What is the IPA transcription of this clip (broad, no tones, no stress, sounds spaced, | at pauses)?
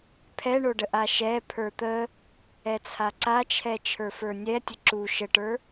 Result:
pʰ ɛ ɳ o ɖ ə ʔ a ʃ ɛ pʰ ə˞ t̪ ə | ɛ t͡sʰ a ǀ a t͡ʃʰ ɛ t͡ʃʰ ə˞ f ə˞ nʲ ɛ tʲ ə ǁ u ʃ ə ʈ ə˞